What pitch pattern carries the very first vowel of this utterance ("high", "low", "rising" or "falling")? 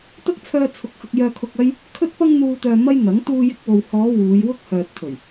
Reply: high